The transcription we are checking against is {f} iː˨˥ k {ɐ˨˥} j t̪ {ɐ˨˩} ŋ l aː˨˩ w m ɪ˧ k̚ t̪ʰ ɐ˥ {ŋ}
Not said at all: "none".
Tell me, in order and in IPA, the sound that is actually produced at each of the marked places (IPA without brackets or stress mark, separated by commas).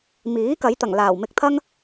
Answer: m, ɐ˨˥, ɐ˨˩, ŋ